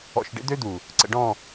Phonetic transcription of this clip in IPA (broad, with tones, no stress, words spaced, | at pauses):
ɔ̰˨ʃɖḛ˦d̪ø˦ d̪u˨ | ǀə̰˨ɖɔ̃˦˨